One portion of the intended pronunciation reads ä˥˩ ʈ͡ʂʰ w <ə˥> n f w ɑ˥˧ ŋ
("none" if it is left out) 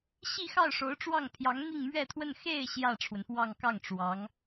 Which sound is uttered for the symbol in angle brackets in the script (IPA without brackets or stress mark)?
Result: ə˩